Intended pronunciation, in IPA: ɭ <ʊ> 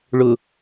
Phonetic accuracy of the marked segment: correct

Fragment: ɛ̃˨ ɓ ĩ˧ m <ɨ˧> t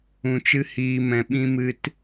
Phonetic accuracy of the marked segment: correct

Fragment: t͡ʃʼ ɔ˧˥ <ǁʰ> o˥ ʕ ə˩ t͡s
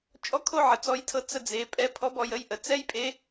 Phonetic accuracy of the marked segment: incorrect: kʰ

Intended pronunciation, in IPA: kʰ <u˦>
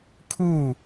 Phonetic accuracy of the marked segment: incorrect: u˦˨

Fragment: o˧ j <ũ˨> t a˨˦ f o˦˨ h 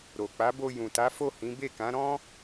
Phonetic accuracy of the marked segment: correct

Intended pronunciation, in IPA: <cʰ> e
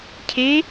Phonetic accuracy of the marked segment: correct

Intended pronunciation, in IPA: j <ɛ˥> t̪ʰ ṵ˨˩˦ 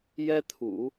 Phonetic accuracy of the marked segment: correct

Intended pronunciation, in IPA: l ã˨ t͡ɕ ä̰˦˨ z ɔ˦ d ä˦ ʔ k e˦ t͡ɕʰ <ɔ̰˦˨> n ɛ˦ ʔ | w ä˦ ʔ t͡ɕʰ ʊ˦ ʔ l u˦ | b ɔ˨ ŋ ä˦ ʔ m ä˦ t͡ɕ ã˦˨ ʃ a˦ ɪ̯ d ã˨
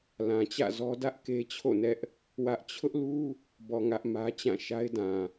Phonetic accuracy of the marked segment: incorrect: o̰˦˨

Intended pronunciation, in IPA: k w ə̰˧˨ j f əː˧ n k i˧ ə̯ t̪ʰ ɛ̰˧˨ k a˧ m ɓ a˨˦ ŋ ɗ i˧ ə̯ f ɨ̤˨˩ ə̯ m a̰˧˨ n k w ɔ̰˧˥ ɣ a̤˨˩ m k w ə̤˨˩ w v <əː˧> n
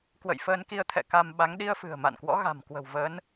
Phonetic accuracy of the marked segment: incorrect: əː˨˦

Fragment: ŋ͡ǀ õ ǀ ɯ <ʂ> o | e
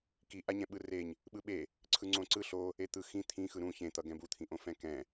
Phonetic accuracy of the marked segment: incorrect: ɬ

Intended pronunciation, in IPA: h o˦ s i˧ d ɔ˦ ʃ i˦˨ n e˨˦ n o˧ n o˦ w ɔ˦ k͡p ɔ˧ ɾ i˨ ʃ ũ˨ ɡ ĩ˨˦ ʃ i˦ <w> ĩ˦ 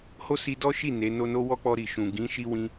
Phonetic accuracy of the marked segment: correct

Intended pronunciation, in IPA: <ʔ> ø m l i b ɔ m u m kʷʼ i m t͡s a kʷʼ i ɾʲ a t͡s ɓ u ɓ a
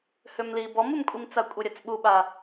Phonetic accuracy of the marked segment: incorrect: h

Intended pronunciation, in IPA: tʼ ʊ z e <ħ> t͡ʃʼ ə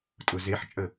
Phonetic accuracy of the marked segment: correct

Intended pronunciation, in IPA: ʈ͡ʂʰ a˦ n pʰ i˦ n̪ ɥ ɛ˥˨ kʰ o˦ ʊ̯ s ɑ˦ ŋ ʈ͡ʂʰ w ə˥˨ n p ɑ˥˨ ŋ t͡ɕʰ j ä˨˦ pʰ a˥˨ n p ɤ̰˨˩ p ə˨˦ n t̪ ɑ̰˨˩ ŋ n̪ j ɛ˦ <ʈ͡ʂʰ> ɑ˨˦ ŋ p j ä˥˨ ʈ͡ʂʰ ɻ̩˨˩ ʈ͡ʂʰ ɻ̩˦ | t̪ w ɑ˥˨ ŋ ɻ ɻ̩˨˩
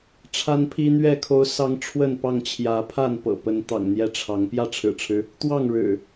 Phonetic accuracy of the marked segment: correct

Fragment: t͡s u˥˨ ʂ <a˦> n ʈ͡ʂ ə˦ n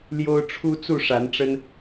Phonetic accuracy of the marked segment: incorrect: a˨˦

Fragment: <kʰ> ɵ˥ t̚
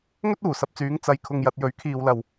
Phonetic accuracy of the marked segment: incorrect: ŋ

